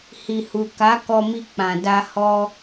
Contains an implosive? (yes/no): no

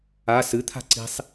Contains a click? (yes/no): yes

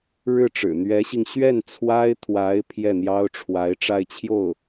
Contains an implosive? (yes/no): no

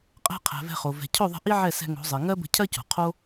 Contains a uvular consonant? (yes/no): yes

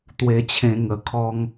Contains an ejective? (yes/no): no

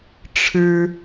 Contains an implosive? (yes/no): no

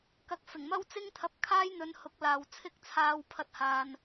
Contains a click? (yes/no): no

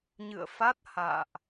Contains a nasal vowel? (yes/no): no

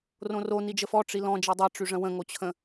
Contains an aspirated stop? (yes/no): yes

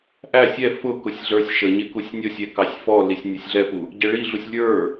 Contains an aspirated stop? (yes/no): no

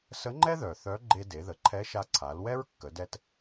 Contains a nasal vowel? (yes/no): no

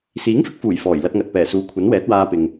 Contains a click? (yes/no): no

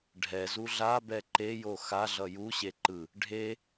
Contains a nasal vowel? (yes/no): no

